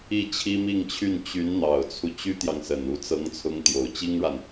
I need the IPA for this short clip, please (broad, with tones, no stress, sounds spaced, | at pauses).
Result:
i˥˩ t͡ɕʰ i˥ m i˥˧ ŋ t͡ɕʰ y˥˩ n t͡ɕ y˧˥ n n̪ ɑ˨˩ ʊ̯ t͡sʰ u˦ t͡ɕ y˥ t̪ j ɑ˨ ŋ s ə˨˩ n u˧˥ t͡s ɤ˧˥ ŋ t͡sʰ ʊ˧˥ ŋ t̪ j o˨˩ ʊ̯ t͡ɕ i˥ ŋ ɻ a˨ n